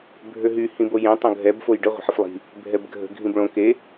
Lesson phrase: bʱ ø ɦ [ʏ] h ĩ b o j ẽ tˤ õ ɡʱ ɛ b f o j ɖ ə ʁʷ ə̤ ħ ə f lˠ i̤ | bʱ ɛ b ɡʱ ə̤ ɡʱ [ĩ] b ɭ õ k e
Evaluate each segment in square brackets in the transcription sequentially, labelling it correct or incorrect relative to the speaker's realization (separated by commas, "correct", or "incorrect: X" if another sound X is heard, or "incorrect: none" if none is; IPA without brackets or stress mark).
incorrect: y, correct